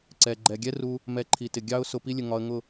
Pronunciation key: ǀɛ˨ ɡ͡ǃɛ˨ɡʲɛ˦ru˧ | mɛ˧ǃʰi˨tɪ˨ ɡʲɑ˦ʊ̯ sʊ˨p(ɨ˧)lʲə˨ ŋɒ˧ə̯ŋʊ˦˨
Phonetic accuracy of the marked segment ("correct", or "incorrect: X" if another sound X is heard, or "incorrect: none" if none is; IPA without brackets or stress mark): incorrect: i˧